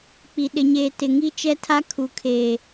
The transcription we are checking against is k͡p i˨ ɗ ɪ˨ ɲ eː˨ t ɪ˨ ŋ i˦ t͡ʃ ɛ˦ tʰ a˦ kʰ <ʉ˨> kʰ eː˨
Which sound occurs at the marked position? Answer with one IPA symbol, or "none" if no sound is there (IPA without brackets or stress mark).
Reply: u˨